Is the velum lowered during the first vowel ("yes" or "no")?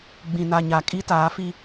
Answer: yes